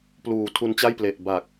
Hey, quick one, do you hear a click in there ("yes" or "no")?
no